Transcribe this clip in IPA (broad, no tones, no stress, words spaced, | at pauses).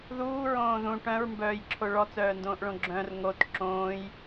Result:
ðuːɹõː ðũ ʈœ̃ɹmbœːjǁʰo ɭɔt͡sœːndõːʔɭõ ɡ͡ǁœ̃r ŋot ǁõːj